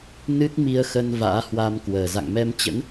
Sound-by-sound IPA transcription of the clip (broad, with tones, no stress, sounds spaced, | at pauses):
n ɨ˦˥ t̚ m i˧ ə̯ x ə˧ n v a̰ː˧˥ h w a˧ m k w əː˨˩ z a̰˧˨ ŋ m ɛ˧ m t͡ɕ ə̰˧˥ n